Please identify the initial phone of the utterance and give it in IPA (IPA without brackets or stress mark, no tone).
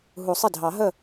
ɦ